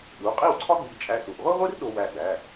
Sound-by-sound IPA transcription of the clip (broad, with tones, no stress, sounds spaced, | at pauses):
ɗ u˩˧˩ qʼ i˥˩ w ǀʰ ɒ˥ ɡ͡b i˧˩ t͡ʃʼ æ˧ s u˩˧˩ ʔ ʁʷ i˥ ʁʷ i˥ r ɗ o˧ w æ˧˩ ɡ͡b æ˩˧˩